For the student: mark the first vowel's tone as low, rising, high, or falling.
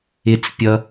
high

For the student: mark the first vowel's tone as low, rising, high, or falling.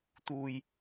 low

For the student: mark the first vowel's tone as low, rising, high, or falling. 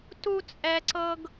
high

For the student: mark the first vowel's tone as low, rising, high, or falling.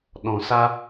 low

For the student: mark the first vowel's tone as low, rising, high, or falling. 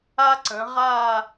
high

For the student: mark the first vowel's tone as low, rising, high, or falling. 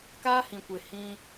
high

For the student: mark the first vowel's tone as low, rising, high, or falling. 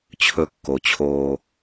low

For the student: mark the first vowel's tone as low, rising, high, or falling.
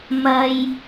high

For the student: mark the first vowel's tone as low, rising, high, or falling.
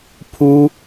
high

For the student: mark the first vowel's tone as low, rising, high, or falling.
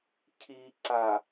low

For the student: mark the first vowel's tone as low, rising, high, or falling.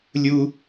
high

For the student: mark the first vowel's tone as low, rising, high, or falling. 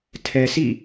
low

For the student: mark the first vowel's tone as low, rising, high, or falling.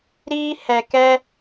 high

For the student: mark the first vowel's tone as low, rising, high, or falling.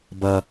high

